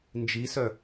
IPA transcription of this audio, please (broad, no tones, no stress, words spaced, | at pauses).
nd͡ʒisœ